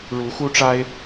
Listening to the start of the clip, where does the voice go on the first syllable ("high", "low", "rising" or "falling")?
rising